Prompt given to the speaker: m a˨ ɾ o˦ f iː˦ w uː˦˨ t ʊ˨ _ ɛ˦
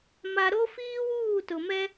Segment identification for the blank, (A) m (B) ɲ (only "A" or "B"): A